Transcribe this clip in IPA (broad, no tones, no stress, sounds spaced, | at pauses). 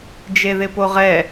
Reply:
d͡ʒ e ð ɪ p o ʁ ɛ